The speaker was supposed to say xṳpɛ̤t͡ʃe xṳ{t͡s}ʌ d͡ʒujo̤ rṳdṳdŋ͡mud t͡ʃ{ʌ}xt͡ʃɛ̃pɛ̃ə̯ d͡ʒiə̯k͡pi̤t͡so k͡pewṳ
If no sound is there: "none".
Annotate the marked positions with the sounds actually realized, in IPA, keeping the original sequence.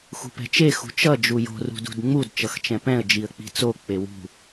t͡ʃ, ʌ

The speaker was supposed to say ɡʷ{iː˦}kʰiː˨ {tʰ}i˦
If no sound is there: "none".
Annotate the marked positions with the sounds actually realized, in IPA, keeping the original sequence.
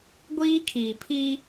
iː˦, pʰ

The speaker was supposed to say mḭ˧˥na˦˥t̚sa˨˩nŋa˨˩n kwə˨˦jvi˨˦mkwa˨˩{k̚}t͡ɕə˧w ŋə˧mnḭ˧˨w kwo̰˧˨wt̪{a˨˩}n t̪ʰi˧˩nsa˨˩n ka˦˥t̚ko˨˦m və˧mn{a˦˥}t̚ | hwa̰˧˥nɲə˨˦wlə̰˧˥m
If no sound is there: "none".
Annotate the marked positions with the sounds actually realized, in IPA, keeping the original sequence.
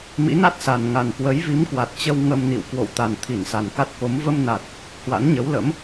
t̚, a˨˩, a˨˩

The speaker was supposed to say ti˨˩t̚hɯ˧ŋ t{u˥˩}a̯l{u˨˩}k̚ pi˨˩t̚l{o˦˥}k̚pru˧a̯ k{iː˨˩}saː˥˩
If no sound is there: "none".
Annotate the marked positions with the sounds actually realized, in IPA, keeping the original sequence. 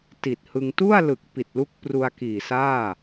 u˥˩, ɯ˨˩, u˦˥, iː˨˩

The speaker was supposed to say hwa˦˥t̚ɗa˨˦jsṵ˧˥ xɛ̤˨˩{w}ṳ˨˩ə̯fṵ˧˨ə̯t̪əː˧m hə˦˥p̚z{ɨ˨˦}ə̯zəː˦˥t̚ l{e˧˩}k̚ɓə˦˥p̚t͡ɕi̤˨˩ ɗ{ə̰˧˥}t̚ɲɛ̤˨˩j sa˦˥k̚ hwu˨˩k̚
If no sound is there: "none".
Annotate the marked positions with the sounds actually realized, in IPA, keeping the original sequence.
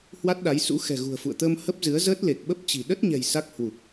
ɣ, ɨ˨˦, e˨˩, ə˦˥

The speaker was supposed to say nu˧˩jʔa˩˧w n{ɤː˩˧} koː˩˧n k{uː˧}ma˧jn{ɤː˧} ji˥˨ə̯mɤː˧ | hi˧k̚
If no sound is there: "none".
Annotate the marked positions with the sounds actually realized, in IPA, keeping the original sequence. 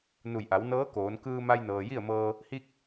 ɤː˧˥, ɯː˧, ɤː˩

